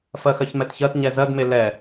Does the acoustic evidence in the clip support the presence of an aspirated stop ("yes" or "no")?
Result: no